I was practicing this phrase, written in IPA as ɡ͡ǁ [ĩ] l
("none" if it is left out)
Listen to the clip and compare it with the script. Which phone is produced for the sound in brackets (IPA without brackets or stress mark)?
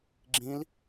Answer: ĩ